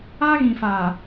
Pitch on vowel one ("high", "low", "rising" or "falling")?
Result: high